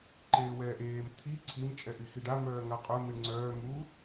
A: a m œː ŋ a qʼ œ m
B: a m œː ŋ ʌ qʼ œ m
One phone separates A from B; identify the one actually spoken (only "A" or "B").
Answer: A